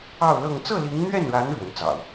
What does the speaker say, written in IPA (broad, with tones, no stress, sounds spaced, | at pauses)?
ɑ˥˧ ʊ̯ l ɤ˥˧ ŋ t͡s ɤ˥˩ l i˧˥ ŋ n̪ ɥ ɛ˥˩ n ɻ a˧˥ n ɻ w ə˧˥ n t͡s ɑ̰˨˩˦ ʊ̯